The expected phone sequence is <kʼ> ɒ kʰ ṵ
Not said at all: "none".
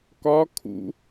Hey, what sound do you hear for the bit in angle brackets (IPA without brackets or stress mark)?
k